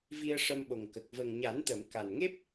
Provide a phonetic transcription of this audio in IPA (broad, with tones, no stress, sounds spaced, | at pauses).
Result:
v i˧ ə̯ ʂ ə˧ m ɓ o˨˩ ŋ k ə˨˩ k̚ v ə˨˩ ŋ ɲ a˨˩˦ n t̪ ə˨˩˨ m k a˨˩ n ŋ e˦˥ p̚